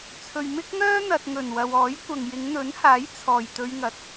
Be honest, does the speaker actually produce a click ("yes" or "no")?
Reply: no